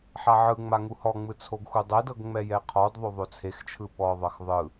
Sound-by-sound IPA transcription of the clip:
ħ a ʕ ɯ ŋ͡m a ŋ u h ɔ ŋ͡m ɯ t͡sʰ o ɡ x u dˤ ɛ d ɤ ɡ ŋ͡m ɛ j ɛ qʰ ɔ d ðˤ o ðˤ o t͡sʰ e x t͡ʃʰ ɯ ɓ ɔ ðˤ ɤ x ðˤ ɯ

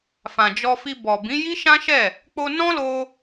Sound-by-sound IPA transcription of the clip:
f ã˨ d͡ʒ ɔ˧ f i˧ b ɔ˨ b ĩ˨˦ j i˦ ʃ ã˦ ʃ ɛ˦˨ | k͡p o˧ n ɔ̃˦ l o˧

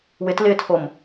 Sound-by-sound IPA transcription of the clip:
w ɪ t l ɪː tʰ o m

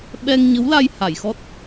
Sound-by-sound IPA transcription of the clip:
ɓ ɛ˧ ŋ ɲ ə˧˥ w l a˧ j h a˨˩˨ j x ɔ˦˥ t̚

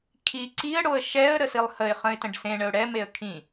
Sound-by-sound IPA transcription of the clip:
kʰ i ǀ i ə̯ ɽ o ə̯ ʃ ɛ ə̯ ɾ ə s i lˠ h ə ɪ̯ χ ə̃ ɪ̯ t ə̃ ɖ s ẽ ɳ ə ʊ̯ ɽ ɛ m e ə̯ kʰ ĩ

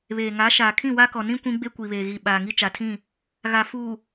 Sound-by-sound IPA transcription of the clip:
β eː˨ ŋ a˨˦ ʃ aː˨ kʰ ĩ˦˨ w a˦ k ɔ˨ n ĩ˦ kʷ ĩ˦ ɡ͡b e˦ kʷ i˨ β eː˨ ɣ i˨ ɓ aː˨ ŋ i˦ t͡ʃ a˨ tʰ ĩ˦˨ | ɣ a˨ f uː˨

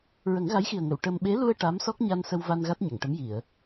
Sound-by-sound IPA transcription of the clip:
ɹ ə˨˩˦ ŋ ɣ a˧˥ j x i˨˩ ə̯ ŋ ə˨˩˨ w ʈ ə˧ m ɓ e˧˥ l u˧ ə̯ ʈ a˧˥ m s ɔ˦˥ k̚ ɲ a˧ n s ə˧ w v a˧ n ɣ a˦˥ t̚ ɲ ə˨˩˨ ŋ ʈ ə˧˥ m j i˨˩˨ ə̯

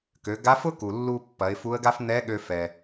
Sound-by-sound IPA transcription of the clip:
k ø˩˧ ɡ a˧˥ f ʊ˥ k u˩ lː u˧ pː ɐ˩˧ ɪ̯ f u˧˥ ə̯ ɡ a˥ f n̪ ɛ˧˥ ɠ ø˧ f ɛ˩

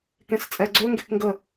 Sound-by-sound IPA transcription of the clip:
k ẽ s t͡sʼ ɛ ɡ͡ǀ ø ŋ ɡ e k ŋ ɡ ə

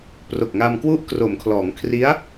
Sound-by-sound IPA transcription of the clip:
p r o˨˩ k̚ ŋ a˧ m k w u˦˥ ʔ k r o˩˦ m kʰ l ɔː˩˦ ŋ kʰ r i˦˥ a̯

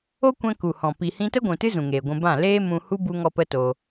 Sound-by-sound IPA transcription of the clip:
o˦ kʷ ɛ̃˧ k u˨ h ɔ̃˨ p i˨ h ĩ˧ t ə˦ ɡʷ ũ˨ t ɨ˦ z ũ˨ ŋ eː˨ ɡʷ ũ˧ b ã˦˨ l eː˦ m ũ˧ h u˦ b u˦ ŋ ɔ˦ p ə˦ t o˧

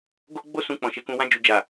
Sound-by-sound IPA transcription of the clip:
ɡ o˧ ɡ͡b o˧ s ũ˨ k͡p ɔ̃˨ ʃ e˧ k ũ˧ w ã˧ d͡ʒ u˨ d͡ʒ a˨

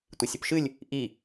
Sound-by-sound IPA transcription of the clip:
tʷ i sʲ ʏ p ʃ ɨ lʲ | ʔ i

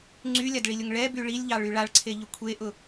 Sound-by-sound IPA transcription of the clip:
ŋ͡ǀ y lʲ a d ɭ i lʲ ʊ ŋ ɭ ɛ b y ɭ i lʲ ʎ ɑ ɭ y ɭ a ɭ ǀʰ e ʎ ʊ kʷʰ e ʔ ʊ

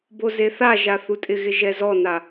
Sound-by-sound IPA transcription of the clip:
b o z e θ a ʒ a θ u tʼ ɪ ɣ ɪ ʒ ɛ z ɔ n a

